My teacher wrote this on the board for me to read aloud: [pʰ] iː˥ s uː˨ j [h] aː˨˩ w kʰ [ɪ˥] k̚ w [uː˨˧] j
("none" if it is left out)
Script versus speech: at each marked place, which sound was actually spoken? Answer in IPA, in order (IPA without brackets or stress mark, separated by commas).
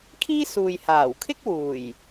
kʰ, h, ɪ˥, uː˨˩